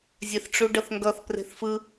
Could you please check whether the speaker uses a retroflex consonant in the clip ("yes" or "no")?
yes